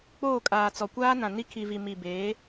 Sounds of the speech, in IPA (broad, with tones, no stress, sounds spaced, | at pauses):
k͡p oː˦˨ kʼ aː˨ t͡s ɔ˨ kʷ aː˦ n ã˨ n i˦ kʰ i˨ v i˨ m i˨ b eː˨˦